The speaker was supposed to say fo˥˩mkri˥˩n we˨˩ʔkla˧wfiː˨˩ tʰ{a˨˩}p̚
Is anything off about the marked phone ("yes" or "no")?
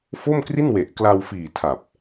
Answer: no